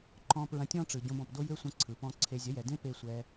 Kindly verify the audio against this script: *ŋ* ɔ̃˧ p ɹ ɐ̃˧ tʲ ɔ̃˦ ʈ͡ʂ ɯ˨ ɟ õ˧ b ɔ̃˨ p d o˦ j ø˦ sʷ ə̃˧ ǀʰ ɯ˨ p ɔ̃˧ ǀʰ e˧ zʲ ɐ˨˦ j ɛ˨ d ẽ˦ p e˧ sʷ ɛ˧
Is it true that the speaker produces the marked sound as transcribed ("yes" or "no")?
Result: no